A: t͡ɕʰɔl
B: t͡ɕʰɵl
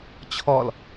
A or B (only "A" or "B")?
A